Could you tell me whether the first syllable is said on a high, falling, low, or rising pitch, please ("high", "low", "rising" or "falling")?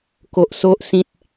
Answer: low